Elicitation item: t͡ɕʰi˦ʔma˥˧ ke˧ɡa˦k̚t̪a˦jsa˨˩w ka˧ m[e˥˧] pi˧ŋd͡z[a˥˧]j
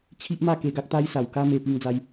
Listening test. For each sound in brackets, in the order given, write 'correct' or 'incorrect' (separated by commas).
correct, incorrect